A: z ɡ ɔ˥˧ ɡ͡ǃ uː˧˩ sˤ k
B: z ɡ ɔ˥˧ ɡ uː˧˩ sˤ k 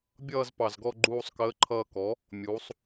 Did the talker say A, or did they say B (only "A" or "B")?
A